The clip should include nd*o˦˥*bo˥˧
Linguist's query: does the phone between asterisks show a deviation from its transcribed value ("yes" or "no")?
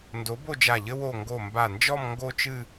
yes